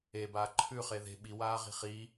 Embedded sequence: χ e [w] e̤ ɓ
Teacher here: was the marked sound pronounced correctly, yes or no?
no